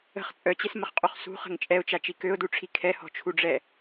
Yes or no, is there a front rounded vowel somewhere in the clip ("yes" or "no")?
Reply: yes